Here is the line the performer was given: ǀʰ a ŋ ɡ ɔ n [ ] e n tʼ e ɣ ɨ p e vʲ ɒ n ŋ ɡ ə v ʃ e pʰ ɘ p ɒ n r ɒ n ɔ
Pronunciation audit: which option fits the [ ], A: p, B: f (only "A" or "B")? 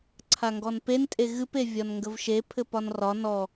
A